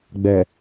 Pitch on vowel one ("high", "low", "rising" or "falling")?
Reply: low